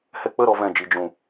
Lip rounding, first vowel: unrounded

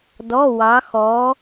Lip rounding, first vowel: rounded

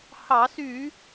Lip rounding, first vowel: unrounded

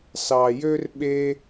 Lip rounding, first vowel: unrounded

